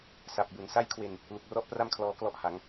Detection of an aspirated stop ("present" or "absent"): present